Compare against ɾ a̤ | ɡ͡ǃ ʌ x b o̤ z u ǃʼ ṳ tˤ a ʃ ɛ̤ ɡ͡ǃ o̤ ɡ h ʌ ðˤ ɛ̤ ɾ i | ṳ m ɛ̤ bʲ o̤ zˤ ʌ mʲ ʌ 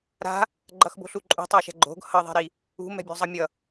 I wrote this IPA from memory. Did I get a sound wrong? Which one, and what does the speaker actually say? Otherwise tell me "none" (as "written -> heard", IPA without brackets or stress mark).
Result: z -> ɬ